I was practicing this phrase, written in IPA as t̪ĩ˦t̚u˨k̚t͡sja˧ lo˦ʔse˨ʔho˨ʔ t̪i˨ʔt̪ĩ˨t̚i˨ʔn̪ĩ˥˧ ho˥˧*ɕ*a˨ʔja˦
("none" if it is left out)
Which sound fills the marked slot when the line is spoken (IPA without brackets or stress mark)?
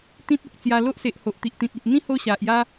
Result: ɕ